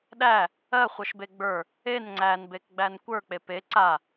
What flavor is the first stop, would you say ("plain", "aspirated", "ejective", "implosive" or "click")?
implosive